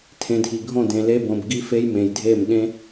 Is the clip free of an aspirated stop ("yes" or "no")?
no